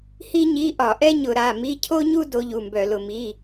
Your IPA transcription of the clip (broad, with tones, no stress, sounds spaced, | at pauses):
h i˥ ɲ i˧˥˧ ʔ ɒ˧˩˧ ʔ ɛ˥ ɲ ʊ˧˩˧ ɾ a˩˧˩ m i˧˥˧ cʰ o˥ ɲ u˥ d o˧˥ ʎ u˩˧˩ m b œ˧˩˧ l ʊ˧˩˧ m i˩˧˩